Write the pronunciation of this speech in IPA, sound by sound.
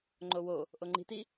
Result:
ŋ͡ǃ o w o | ʔ o ŋ͡ǃ i̤ t i

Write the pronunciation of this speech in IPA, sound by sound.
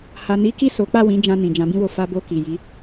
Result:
h a˨ n i˨˦ k i˦˨ s o˨˦ k͡p a˦˨ w ĩ˨˦ d͡ʒ ã˧ n ĩ˨ d͡ʒ ã˨˦ b ĩ˦ w o˧ f a˧ b o˧ k i˨ j i˨˦

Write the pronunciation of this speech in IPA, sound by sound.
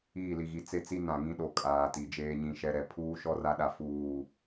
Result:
iː˦˨ l i˨ ɣ i˨ t͡s e˦ t͡s i˦ n ã˨ ŋ ĩ˦ ɗ o˨ kʼ aː˨ t i˨ d͡ʒ eː˦ ɲ ĩ˦ ʃ ɛ˦ ɾ ɛ˨ pʰ uː˦ ʃ ɔ˦ r a˦ ɗ a˨ f uː˨

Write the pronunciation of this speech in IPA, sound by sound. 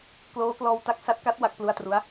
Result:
k l oː˦˥ k l ɔː˧ w t a˦˥ k̚ s a˦˥ t̚ k a˦˥ t̚ w a˦˥ k̚ p l u˦˥ a̯ t r u˦˥ a̯

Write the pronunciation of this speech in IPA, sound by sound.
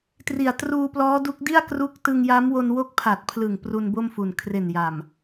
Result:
t r i˨˩ a̯ t r uː˧ p l ɔː˦˥ d u˦˥ k̚ d i˥˩ a̯ k r u˦˥ k̚ t ɯ˧ ŋ j a˦˥ m w o˧ n w o˦˥ k̚ pʰ a˨˩ t̚ pʰ l ɯ˨˩ ŋ p r u˧ n b o˥˩ m f u˨˩ n kʰ r e˨˩ n j a˨˩ m

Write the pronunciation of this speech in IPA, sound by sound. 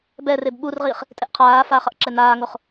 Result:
b ɛ r e b ɓ u r ʁ iː χ | tʼ ɛ ʔ qʰ aː f a χ ʌ ʔ ǁ ɛ n aː ŋ o χ

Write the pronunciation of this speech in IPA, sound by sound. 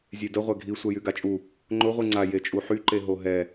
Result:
zʲ e d ə ʁʷ ɛ ɡʱ i sʷ ɛ j y ɡ a t͡ʃʼ u | ŋ͡ǃ ʊ ʁʷ i ŋ͡ǀ a j e t͡ʃʼ u ħ y ǃ e ɦ o ɦ ɛ

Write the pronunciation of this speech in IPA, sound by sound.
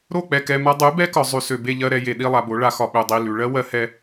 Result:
ɾ o˦˨ k͡p ɛ˨ k ɛ˨ m a˧ dˤ ʉ˨˦ b ɛ˦ k ɒ˨ zˤ ʉ˨ s ø˨ b e˧ ʎ ɜ˧ ɾ ɛ˧ j e˨ ɗ i˧ lˠ a˨ b o˨˦ ɭ a˧ x ɒ˨ ɓ ø˨ dˤ i˨ l ʉ˨ ɭ ɜ˦ w ɜ˧ h ɛ˧

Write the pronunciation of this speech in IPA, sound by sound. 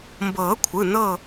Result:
m b ɤː˨˩˦ kʷʰ ɯ˩˧˩ n ɤ˦˨

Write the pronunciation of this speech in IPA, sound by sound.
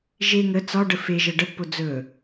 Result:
ʒ e ŋ ə t͡s ɒ ɖ ə f e ʒ ə ɖ ə pː o d͡z ɵ

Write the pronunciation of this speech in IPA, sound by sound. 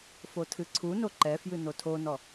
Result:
f o tʰ ɨ ǀʰ u n o ǃ ɛ f j ɨ n o tʰ o n ɔ

